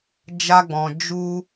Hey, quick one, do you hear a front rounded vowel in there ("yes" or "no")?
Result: no